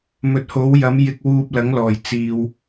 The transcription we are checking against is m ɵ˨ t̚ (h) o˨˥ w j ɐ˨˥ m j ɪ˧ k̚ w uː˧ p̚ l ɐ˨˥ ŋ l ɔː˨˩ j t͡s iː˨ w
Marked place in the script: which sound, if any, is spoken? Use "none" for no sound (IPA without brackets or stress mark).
h